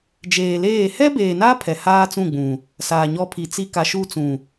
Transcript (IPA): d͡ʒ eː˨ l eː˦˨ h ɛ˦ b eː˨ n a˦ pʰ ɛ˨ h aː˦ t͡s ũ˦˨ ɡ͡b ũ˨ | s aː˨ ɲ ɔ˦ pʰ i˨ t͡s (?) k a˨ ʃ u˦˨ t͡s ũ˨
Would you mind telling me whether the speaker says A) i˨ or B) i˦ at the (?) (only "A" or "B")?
B